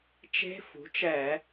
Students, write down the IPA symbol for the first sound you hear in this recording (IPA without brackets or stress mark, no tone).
t͡ʃ